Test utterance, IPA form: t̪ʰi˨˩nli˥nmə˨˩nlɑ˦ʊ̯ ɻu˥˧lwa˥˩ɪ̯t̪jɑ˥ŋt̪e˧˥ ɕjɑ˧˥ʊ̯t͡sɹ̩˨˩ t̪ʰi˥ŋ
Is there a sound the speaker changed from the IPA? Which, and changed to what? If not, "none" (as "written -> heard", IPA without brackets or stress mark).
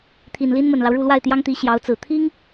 e˧˥ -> i˧˥